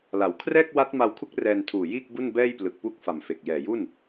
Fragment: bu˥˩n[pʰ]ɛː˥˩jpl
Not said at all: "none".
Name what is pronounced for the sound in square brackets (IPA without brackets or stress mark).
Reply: b